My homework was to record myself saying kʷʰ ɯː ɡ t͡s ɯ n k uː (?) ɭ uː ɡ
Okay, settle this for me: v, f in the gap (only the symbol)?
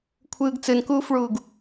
f